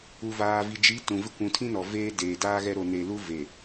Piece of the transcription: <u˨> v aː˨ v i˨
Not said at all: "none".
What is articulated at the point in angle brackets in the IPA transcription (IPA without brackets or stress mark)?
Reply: u˨